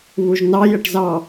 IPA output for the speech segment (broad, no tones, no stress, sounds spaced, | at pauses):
β u ʒ n ɑ j ə ʈ z ɑ